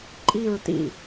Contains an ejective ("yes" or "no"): yes